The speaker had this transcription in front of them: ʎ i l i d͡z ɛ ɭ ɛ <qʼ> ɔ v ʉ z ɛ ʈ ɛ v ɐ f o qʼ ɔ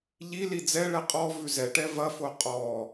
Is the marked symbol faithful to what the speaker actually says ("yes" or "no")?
yes